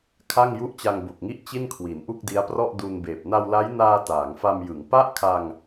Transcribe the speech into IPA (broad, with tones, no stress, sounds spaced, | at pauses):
kʰ a˥˩ ŋ j u˥˩ ʔ t͡ɕ a˧ ŋ b o˨˩ k̚ ŋ i˥˩ ʔ t͡ɕ i˥˩ n kʰ w i˩˦ n ʔ u˥˩ k̚ d i˦˥ a̯ p r ɔ˥˩ ʔ d u˧ n b eː˨˩ p̚ n a˧ w l a˦˥ j n aː˧ t aː˩˦ ŋ f a˧ m j ɯ˩˦ ŋ p a˥˩ ʔ kʰ a˧ ŋ